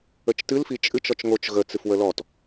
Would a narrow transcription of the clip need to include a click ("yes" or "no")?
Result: no